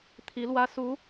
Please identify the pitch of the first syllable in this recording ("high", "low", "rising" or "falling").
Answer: rising